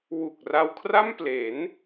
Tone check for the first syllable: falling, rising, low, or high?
low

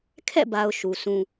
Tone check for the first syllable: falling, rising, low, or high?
falling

